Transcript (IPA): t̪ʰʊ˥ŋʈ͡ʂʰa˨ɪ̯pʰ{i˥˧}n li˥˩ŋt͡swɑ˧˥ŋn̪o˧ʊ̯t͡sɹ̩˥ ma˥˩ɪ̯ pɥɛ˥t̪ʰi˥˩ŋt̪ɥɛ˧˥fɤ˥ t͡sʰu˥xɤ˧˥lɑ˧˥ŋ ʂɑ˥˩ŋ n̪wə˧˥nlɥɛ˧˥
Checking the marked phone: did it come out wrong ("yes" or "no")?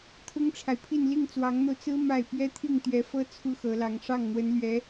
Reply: no